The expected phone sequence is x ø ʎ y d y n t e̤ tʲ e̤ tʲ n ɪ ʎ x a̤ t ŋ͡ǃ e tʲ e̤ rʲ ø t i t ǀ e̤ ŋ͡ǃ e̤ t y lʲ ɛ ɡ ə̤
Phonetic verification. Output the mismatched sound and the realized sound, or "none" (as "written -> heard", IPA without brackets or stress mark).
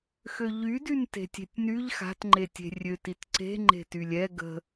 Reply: ɪ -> y